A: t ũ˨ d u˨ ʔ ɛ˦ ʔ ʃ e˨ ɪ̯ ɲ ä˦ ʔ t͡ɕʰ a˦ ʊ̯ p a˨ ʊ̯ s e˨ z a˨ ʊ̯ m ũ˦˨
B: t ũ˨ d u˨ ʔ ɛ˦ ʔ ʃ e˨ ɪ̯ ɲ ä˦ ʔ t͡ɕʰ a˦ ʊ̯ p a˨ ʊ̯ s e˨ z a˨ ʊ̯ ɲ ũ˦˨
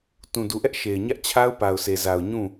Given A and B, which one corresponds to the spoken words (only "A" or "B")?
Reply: B